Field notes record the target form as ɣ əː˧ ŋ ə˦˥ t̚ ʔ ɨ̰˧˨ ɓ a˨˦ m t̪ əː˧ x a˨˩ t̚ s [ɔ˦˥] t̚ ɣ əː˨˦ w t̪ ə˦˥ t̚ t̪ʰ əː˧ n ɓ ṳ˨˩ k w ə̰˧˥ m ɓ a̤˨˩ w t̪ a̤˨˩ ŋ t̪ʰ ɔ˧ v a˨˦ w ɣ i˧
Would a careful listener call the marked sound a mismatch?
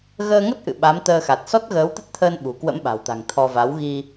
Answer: no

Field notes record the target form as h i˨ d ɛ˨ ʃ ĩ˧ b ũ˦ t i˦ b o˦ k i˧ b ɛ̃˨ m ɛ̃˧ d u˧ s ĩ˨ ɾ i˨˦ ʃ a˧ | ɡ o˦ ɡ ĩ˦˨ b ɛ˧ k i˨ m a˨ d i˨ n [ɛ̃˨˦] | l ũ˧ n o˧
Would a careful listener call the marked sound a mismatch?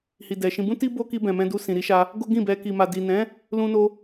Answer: no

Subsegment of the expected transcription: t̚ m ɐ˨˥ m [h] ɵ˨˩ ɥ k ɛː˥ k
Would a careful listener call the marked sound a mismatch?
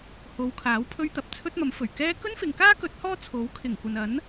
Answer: yes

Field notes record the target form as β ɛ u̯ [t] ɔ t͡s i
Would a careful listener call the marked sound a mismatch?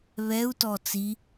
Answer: no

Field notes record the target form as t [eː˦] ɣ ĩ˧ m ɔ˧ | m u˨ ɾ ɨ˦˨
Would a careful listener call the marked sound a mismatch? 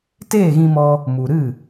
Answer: yes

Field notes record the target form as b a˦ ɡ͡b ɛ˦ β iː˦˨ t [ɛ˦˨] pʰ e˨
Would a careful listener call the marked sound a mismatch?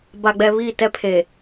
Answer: yes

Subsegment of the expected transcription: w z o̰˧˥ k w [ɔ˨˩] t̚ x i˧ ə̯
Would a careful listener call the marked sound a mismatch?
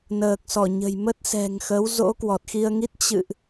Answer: no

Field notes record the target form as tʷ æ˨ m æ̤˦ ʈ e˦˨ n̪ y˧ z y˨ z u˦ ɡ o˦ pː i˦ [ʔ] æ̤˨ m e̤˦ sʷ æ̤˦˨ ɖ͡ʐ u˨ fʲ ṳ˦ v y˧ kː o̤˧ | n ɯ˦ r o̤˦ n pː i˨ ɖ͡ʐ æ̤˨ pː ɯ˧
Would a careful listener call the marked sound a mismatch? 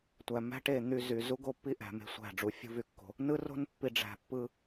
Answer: no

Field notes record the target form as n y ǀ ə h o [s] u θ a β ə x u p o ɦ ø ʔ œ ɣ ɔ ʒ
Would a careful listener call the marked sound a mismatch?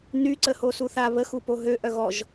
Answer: no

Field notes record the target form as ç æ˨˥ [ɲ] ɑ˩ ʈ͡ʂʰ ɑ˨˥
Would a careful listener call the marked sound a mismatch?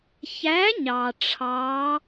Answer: no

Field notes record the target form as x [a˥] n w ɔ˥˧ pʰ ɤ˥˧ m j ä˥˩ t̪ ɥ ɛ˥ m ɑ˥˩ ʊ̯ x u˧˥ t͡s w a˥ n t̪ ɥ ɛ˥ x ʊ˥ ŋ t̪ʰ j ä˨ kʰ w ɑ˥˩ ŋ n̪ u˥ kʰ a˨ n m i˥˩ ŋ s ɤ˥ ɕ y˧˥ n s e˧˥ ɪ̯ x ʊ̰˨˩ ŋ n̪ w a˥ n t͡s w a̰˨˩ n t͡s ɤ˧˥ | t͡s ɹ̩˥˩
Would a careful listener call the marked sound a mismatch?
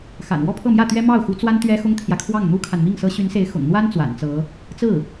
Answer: yes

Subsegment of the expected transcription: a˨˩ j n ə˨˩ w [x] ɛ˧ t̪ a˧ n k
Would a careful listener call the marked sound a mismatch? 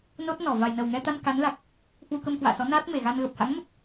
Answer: yes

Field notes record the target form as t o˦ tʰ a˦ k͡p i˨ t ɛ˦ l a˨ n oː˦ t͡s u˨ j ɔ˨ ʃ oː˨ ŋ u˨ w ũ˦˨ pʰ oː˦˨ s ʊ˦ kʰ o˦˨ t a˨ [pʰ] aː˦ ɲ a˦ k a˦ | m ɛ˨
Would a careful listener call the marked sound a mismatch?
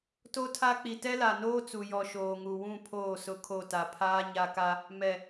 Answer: no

